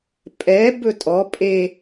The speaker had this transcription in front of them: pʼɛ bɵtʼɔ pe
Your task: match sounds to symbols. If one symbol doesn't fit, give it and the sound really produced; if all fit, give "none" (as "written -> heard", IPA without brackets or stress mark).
p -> pʼ